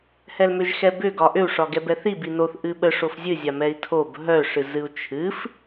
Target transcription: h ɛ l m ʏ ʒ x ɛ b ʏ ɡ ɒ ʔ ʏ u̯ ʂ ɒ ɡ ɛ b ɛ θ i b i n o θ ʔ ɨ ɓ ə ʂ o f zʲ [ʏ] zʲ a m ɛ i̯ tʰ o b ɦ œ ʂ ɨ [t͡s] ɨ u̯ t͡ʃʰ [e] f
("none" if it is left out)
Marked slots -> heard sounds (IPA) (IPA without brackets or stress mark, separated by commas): ɨ, z, ɨ